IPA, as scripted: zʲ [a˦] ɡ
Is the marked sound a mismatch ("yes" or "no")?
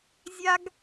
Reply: no